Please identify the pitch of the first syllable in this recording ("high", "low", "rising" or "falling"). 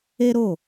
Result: high